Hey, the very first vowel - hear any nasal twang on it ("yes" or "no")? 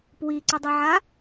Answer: no